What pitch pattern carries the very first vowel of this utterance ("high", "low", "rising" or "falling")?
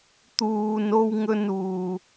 low